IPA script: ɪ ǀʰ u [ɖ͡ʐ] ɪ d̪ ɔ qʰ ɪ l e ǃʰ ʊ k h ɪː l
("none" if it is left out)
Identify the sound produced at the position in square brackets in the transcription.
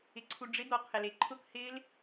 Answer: ɖ͡ʐ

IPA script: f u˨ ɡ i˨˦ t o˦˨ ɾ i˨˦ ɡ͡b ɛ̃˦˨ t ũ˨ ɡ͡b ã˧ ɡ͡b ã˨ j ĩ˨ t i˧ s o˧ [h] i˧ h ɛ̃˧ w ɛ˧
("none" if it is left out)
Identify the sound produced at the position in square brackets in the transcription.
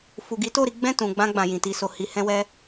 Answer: h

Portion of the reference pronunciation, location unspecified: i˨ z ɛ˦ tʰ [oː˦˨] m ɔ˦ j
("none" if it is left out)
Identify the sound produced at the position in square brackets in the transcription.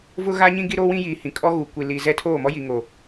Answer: oː˦˨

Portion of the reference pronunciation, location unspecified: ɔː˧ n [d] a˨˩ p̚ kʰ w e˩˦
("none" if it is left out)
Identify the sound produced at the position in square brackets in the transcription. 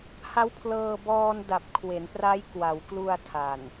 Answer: d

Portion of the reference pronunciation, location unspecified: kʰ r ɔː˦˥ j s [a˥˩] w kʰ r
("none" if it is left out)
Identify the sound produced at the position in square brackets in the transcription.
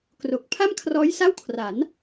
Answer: a˥˩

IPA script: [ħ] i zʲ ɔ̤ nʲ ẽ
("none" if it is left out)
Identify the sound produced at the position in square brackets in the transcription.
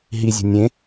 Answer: ɦ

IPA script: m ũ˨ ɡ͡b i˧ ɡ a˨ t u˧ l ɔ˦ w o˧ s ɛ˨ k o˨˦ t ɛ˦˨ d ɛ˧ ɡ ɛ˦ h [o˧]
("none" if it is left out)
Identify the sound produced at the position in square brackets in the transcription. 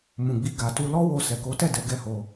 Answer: o˧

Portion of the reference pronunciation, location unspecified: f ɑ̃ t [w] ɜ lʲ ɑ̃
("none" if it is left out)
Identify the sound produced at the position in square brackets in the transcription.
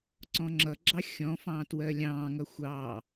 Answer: w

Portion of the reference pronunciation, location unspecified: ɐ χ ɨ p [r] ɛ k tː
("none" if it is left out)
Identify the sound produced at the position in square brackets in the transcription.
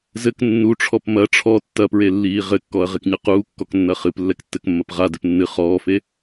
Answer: lː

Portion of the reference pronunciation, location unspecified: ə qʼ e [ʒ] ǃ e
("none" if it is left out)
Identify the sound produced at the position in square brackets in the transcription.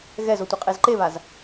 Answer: z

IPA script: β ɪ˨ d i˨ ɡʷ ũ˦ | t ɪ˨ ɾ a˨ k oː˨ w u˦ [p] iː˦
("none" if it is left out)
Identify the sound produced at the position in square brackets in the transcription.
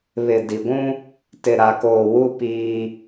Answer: p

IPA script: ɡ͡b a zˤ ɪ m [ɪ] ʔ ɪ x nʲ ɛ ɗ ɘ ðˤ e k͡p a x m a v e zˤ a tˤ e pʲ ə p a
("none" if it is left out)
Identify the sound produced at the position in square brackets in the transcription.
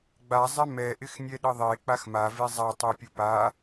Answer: ɛ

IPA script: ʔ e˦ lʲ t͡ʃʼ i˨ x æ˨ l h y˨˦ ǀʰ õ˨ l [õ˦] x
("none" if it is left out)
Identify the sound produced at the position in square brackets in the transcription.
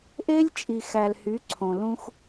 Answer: ũ˦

